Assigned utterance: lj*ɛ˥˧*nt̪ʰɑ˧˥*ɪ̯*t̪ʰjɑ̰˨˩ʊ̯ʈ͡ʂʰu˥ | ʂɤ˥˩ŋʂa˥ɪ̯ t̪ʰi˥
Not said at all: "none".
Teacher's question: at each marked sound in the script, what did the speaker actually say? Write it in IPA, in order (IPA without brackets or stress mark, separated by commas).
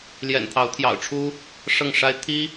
ɛ̰˨˩, ʊ̯